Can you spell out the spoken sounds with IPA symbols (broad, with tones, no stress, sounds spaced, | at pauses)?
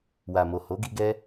w a˨ m o˨ h o˨˦ ɡ i˧ ɡ ɛ˦